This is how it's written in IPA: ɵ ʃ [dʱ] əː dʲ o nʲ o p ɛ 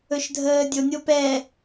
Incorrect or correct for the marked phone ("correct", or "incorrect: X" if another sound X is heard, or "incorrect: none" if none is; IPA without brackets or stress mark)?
correct